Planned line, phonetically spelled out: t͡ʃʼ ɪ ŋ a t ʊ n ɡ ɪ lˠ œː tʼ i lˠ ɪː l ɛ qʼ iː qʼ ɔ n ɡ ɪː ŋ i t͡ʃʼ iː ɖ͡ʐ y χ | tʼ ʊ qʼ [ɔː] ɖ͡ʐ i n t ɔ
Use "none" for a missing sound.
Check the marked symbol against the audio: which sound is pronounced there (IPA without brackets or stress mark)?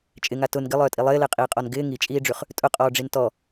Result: ɔː